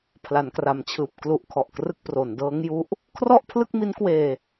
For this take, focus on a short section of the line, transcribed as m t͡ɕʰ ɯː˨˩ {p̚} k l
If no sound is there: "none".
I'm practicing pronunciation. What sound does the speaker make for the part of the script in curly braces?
p̚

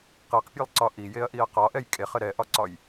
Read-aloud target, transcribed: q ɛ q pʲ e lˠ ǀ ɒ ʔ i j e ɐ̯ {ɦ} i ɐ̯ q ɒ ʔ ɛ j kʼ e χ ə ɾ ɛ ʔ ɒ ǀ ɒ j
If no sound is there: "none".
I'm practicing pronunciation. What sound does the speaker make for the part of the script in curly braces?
ʔ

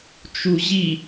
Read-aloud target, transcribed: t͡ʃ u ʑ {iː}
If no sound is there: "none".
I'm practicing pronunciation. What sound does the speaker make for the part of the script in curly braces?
i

